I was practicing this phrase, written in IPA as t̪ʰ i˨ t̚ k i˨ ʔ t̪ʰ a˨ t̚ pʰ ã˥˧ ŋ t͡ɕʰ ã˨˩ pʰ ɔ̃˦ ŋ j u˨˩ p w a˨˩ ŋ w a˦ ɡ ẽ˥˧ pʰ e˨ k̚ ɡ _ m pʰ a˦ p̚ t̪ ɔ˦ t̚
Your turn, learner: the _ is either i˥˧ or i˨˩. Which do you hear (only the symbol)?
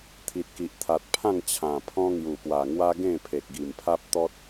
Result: i˨˩